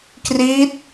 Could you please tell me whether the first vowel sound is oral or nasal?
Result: oral